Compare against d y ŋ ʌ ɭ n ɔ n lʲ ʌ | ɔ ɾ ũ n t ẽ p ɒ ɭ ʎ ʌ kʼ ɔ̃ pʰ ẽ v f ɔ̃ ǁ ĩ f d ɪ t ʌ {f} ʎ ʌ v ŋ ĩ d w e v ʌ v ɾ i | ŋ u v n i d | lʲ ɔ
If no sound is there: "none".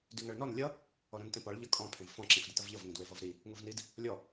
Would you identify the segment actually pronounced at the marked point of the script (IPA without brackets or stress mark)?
v